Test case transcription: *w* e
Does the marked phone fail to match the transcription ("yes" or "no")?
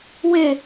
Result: no